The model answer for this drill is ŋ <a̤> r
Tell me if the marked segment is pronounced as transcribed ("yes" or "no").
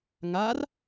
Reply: no